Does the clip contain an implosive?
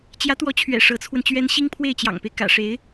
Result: no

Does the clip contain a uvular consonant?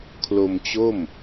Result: no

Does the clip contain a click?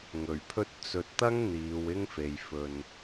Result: no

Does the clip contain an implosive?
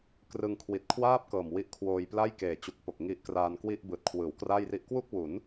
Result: no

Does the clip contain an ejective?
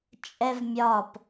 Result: yes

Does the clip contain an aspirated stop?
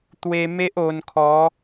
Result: yes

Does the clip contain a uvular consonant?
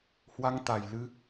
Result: no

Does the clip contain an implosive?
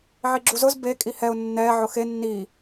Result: no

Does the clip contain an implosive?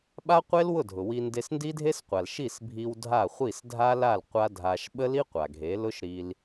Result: yes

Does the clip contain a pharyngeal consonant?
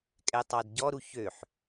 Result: yes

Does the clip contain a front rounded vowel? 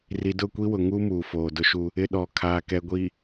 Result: no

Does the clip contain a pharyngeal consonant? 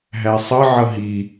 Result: yes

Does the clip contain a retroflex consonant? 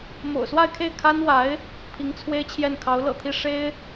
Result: yes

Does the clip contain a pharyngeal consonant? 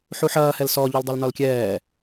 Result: yes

